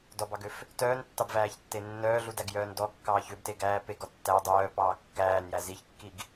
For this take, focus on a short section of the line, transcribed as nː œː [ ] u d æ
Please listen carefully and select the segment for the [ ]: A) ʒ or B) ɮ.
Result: B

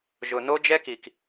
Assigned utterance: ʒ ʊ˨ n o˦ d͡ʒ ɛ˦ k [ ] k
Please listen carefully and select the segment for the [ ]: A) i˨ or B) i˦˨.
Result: A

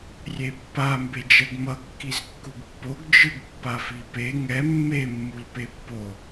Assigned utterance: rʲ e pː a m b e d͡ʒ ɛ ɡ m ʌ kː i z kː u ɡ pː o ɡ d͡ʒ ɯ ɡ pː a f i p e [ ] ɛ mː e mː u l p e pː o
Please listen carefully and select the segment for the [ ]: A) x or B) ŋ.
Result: B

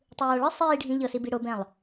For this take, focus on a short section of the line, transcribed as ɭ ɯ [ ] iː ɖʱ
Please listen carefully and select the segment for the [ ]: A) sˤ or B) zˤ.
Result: A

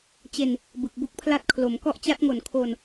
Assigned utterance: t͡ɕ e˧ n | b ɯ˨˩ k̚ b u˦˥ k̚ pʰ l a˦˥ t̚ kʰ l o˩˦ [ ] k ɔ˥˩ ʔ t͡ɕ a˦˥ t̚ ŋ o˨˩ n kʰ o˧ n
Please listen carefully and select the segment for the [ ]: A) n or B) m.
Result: B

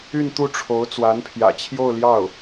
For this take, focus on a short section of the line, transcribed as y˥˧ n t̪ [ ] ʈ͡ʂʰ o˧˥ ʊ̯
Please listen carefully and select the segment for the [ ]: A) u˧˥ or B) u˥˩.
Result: B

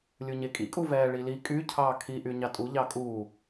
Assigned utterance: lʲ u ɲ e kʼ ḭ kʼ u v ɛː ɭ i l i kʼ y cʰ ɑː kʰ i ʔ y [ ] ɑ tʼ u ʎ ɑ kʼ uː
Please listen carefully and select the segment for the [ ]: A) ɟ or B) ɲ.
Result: B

